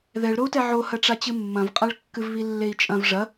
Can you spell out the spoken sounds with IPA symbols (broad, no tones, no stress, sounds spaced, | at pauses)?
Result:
ð ɛ ɭ ɾ o u̯ t ɛ ʕ o h ɐ ʈ͡ʂ a t͡ɕ ɨ mː ɐ̃ v qʼ a ɭ kː ɨ v β i lː e i̯ t͡ʃʼ ɐ̃ v ʐ ɐ